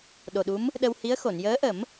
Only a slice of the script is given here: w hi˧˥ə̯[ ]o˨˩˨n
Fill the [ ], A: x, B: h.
A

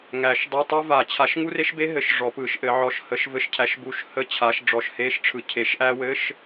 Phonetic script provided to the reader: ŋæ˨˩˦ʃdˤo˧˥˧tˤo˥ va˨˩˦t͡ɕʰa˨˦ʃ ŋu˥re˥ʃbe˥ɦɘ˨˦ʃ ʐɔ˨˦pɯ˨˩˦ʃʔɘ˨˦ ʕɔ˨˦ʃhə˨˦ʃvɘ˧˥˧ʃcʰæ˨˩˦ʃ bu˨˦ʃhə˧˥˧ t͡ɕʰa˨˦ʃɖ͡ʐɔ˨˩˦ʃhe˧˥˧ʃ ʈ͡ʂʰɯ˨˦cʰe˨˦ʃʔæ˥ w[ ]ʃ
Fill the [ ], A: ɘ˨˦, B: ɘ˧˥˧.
B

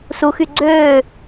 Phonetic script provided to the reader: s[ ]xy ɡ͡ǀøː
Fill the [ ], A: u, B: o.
A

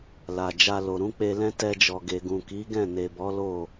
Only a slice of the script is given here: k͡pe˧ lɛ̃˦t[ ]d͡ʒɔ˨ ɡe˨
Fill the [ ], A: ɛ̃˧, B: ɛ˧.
B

